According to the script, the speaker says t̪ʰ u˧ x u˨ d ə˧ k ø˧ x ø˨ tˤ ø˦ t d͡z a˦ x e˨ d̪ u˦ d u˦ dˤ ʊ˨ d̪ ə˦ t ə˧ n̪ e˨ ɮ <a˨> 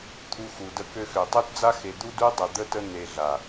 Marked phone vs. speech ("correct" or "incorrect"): correct